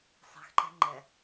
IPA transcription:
sˤ i̤ x ǃ ɛ̤ ŋ͡ǃ ɛ

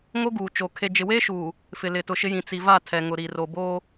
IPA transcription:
ŋ o˦ ɡ uː˨ t͡ʃ o˨ kʰ e˨ d͡ʒ ɪ˨ w eː˦ ʃ uː˨ | f ɪ˨ l ɪ˨ t ʊ˨ ʃ ɪ˦ j ĩ˨ t͡s i˨ v a˦˨ tʰ ɛ˨ ŋ ʊ˨ ɾ i˨ r o˨ b oː˦

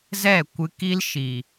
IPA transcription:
z ɛ˦˨ kʷ ɨ˧ k i˦ l ʃ i˨

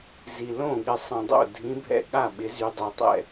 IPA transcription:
z i˧ l õ˥˨ ɠ ɪ˧ sˤ ɐ̃˧ dˤ o̰˥˨ dʱ ĩ˧˥ bʱ ɛ̰˥˨ ɠ a˥˨ ɓ ɪ˧˥ z y˧ dˤ ø˧ tˤ ɛ̰˥˨

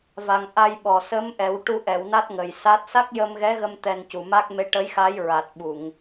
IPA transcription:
v a˨˩ ŋ ʔ a˧ j ɓ ɔ˨˩ s ə˧˥ m ʔ ɛ˨˩˦ w ʈ u˧ ʔ ɛ˨˩˨ w n a˦˥ t̚ ŋ ə˨˩ j s a˦˥ t̚ s a˦˥ k̚ j ə˧ m ɣ ɛ˧˥ ɣ ə˧ m t̪ ɛ˧ n c u˨˩ m a˦˥ k̚ m e˧ ʈ ə˧˥ j x a˧˥ j ɹ a˨˩ t̚ ɓ u˨˩˨ ŋ

